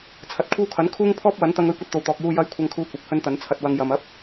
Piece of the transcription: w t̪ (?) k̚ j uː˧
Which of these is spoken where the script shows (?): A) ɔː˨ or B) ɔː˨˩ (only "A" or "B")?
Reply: A